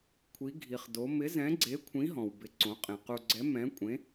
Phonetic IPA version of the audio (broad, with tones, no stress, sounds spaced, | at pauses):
kʷʰ i˧˥ ɡʱ i˧ χ d o˧˥ m ɪ˧˥ z ɛ̃˧˥ ɡ͡ǀ e˧˥ kʷʰ ĩ˧˥ ɦ ɔ̃˧ w b ɪ˧˥ ǀ õ˧˥ qʼ ẽ˧ q u˧ ɡ͡ǀ ɛ˧˥ m ɛ̃˧˥ kʷʼ ẽ˧˥